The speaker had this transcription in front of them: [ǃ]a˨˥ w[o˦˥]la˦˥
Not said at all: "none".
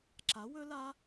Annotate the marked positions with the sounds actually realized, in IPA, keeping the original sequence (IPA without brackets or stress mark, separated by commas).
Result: ǁ, ɵ˦˥